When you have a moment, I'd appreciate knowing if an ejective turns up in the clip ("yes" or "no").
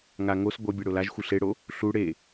no